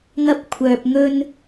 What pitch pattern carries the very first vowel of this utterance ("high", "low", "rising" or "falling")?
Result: high